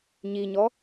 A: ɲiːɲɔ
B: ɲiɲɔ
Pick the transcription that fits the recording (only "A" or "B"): B